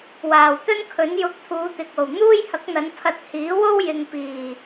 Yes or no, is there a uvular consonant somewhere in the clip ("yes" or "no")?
no